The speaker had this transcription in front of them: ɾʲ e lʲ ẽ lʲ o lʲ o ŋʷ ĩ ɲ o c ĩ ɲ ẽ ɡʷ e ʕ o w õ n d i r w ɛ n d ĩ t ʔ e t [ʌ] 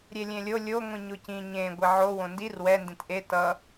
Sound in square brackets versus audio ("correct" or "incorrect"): correct